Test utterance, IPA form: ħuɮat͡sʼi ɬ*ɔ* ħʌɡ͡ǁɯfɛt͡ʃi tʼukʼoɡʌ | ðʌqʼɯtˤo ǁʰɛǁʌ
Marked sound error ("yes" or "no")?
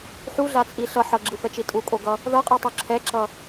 yes